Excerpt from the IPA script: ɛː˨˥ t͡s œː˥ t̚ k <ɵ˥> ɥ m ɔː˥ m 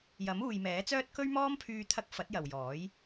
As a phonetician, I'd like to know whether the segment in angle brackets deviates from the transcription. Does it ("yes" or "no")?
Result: no